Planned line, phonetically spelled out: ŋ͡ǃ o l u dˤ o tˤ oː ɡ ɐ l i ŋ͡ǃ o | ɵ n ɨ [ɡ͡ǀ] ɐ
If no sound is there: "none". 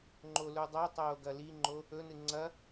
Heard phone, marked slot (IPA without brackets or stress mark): ŋ͡ǀ